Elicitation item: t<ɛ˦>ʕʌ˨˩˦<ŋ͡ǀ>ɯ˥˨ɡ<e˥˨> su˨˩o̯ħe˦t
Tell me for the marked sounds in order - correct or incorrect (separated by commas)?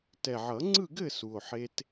incorrect, correct, incorrect